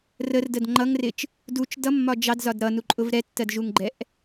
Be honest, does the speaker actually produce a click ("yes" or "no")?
yes